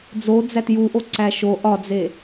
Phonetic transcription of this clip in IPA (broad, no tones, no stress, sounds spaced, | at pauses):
d͡z o d͡z æ t j u ʔ o ǀ æ ʃ o ʔ ɒ d͡z e